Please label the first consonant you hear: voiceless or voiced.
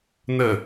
voiced